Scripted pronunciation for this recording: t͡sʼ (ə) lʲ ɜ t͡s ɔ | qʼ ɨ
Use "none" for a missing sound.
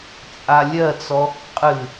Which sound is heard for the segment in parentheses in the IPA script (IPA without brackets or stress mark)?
a